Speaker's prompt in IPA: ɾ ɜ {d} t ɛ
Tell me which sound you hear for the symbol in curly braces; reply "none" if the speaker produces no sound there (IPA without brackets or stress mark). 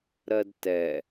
d